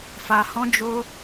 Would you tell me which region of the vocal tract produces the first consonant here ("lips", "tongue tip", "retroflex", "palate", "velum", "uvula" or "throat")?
lips